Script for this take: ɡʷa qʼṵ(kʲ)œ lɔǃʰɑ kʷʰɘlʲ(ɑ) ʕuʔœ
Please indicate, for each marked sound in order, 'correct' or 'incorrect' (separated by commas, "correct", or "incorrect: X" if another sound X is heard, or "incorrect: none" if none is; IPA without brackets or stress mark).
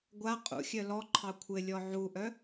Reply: incorrect: xʲ, incorrect: ɔ